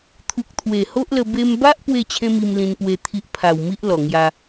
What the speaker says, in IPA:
t̪ʰ u˨ k̚ t̪ʰ w e˨˩ h o˦ ʔ l ə˧ b e˧ m b a˦ ʔ p w e˥˧ t͡ɕʰ ẽ˦ m i˧ m l ĩ˧ n p w e˧ t̪ʰ i˦ ʔ pʰ a˨˩ w m i˦ ʔ l ɔ˨˩ ŋ j a˧

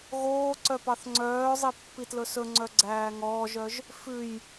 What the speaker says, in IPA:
ɣ oː ǀ œ p ɑ θ ŋ͡ǀ œː zˤ i pː i t l ɵ s ɵ ŋ͡ǀ œ ɡ͡ǀ æː ŋ ɔː ʒ œ ʒ | f ʉ j

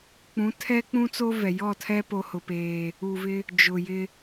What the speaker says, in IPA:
k͡p ũ˨˦ tʰ ɛ˦ k͡p ũ˦ t͡s o˦ v ɛ˨ j ɔ˦˨ tʰ ɛ˦ p o˦ h ʊ˦ p eː˦ | uː˨ v ɪ˦ | d͡ʒ ʊ˨ j ɪ˦

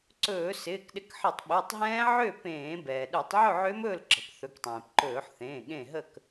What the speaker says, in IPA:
ǀ ɵː˧˩˧ s ɪː˩˧˩ k ɗ ɪ˨˥ k ħ ə˧˩˧ tˤ ɓ ø˩˧˩ tˤ ɦ ɛ̃ː˦˥ ʕ ø˥˨ p ẽː˧˩˧ b ɛː˩ ɗ ø˧˩˧ tˤ ʕ ɵ˥˨ ʕ ø˦˥ m ɵː˥˨ l ǁ ə̤˩ p θ ɵ˩˧˩ k tˤ ẽː˩ p ǃ ɵː˧˩˧ ħ θ ẽː˩˧˩ ɠ ẽ˥˨ ɦ ə˥˨ k

